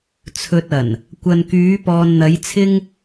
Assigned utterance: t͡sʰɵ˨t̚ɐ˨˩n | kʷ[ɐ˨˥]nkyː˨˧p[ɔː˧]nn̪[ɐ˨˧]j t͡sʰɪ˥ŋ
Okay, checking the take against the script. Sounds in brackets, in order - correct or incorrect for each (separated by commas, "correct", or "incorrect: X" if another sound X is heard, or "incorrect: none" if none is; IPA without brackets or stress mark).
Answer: incorrect: ɐ˨, incorrect: ɔː˨, correct